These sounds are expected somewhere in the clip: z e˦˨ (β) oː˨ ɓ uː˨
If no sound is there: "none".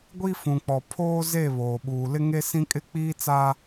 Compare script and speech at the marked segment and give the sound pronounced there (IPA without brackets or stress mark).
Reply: β